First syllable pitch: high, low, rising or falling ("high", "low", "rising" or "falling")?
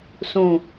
low